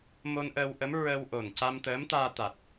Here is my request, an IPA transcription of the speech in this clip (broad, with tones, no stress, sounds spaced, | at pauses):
m o˧ n ʔ əː˧ w ʔ ə˧˥ m ɹ ə˧ w ʔ o˨˩ n c a˧ m t̪ əː˧˥ m t̪ aː˧ t̪ a˨˩ t̚